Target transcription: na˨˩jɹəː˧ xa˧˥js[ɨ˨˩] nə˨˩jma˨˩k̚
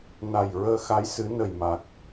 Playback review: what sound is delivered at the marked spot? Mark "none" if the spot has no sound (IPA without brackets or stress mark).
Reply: ɨ˨˩˦